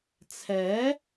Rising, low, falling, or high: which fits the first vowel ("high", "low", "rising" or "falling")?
rising